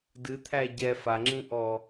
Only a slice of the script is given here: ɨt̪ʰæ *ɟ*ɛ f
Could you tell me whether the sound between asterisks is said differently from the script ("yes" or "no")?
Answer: no